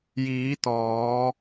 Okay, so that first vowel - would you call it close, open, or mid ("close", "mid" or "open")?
close